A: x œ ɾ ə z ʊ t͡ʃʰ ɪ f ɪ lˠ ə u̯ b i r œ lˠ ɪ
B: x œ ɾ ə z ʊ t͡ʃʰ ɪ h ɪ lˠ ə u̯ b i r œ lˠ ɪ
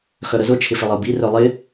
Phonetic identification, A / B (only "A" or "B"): A